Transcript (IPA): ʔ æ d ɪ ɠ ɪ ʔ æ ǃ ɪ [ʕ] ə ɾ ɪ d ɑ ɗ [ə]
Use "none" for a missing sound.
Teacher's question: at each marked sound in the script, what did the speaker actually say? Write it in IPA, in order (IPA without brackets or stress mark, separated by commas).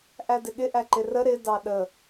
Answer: r, ə